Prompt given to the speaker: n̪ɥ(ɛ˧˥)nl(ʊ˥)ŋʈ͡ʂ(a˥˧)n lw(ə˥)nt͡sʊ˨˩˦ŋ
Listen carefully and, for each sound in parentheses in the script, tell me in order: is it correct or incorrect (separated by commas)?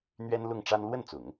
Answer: incorrect, incorrect, incorrect, incorrect